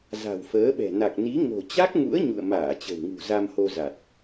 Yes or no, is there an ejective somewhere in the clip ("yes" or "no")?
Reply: no